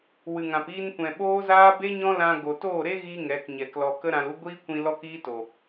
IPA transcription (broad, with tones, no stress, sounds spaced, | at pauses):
w ɨ˨ ŋ ã˨ p iː˧ n kʷ ɛ̃˨ ɓ oː˦ z aː˦ b e˦ ɲ ɔ̃˦ l ã˧ ɡ o˨ t oː˦˨ ɾ e˦ ɣ iː˦ ŋ ɛ˨˦ k ɲ ɛ˨ k l ɔ˧ k ə˦ ɾ ã˧ l u˦ ɡʷ iː˦ kʷ ĩ˧ l ɔ˦ k iː˦ t o˨